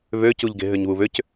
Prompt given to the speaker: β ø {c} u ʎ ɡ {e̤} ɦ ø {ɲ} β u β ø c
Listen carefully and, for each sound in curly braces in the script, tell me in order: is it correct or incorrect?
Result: correct, correct, correct

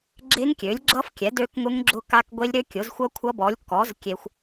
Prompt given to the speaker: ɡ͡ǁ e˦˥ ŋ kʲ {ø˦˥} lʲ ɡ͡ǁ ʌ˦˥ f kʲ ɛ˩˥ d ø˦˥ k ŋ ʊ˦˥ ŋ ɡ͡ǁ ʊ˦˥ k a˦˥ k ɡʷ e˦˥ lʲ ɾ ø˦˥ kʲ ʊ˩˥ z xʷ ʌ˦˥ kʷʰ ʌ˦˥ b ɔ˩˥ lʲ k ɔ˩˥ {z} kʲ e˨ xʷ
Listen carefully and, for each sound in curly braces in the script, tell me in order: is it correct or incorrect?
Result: incorrect, correct

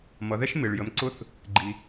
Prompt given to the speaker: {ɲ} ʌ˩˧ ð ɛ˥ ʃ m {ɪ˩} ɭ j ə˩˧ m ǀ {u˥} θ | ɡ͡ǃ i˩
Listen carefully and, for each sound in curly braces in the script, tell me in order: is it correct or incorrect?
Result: incorrect, correct, incorrect

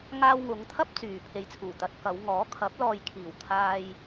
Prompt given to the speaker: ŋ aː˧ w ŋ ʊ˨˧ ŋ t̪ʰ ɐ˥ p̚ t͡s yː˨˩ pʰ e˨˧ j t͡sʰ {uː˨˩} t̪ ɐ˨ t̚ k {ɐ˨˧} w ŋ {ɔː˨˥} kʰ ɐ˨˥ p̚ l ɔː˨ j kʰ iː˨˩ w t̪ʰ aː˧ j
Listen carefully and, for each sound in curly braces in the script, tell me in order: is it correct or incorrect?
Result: correct, correct, correct

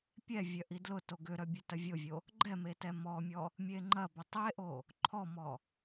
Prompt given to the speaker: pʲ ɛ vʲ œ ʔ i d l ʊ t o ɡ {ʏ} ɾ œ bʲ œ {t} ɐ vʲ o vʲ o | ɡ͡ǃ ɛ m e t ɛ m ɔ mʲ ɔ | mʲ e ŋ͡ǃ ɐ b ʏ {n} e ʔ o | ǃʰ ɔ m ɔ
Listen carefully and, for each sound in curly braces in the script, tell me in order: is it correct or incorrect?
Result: correct, correct, incorrect

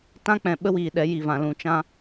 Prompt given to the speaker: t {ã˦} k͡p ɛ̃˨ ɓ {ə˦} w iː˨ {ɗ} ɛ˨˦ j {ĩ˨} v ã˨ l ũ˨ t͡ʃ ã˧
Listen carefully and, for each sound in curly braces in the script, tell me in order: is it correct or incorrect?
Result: correct, correct, correct, incorrect

